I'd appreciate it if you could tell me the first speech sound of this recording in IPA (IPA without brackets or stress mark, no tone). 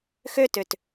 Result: x